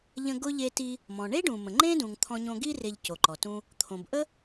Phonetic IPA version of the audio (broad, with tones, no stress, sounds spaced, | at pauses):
ʎ ə̃˧ ɡ ʊ˧ ʎ e˧ t i˧ | m ɔ̃˩ ɳ e˥ ɖ ũ˩ m ə̃˩ ŋ͡ǃ ẽ˥ d ũ˩ ŋ t̪ʰ ɔ̃˧ ɲ õ˧ ɡ i˥ r e˧ ʎ c o˩ ǃ ɔ˩ t ũ˧ | t̪ʰ õ˩ b ʔ ə˥